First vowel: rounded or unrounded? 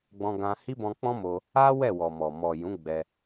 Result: rounded